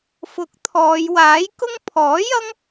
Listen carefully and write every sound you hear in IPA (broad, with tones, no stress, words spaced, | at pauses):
fʊ˨˥k̚ t̪ʰɔː˨˧j waː˨˥jkʊ˥ŋ pʰɔː˨˥ jɐ˥ŋ